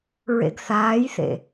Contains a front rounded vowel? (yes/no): no